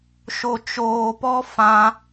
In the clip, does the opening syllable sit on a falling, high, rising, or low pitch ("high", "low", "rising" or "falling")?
low